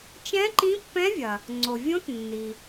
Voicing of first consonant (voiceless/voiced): voiceless